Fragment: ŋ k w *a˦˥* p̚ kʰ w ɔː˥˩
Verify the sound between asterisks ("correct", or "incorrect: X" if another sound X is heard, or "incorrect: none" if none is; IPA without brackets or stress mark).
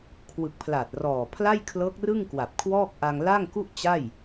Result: incorrect: a˨˩